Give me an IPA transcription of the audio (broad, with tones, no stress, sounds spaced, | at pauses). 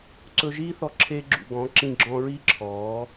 ǀ ɵ˧ ʒ iː˦ θ ɔ˧ ǁʰ e˧ ɡ͡ǁ ṵ˨ ɡ ɔ̃˨˦ ǁ ĩ˧ ɡ͡ǁ ɔ̃˧ ɹ i˦ ǁʰ ɔː˨˦